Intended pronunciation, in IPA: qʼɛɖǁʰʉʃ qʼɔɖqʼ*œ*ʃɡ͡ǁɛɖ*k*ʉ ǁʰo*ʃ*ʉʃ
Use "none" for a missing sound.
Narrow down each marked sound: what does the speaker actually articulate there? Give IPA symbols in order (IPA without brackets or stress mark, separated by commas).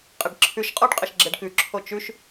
ə, k, t͡ʃ